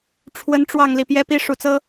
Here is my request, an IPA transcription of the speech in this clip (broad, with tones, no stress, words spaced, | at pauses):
ʈ͡ʂʰwə˥n ʈ͡ʂwɑ˥˧ŋ li˥˩pjɛ˥pi˥ ʂu˧˥t͡sɤ˥